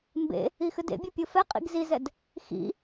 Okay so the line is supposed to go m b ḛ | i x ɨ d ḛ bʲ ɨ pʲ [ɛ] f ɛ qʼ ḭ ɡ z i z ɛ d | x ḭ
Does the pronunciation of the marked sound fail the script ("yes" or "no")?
yes